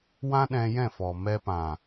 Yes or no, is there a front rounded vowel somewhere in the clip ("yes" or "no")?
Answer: no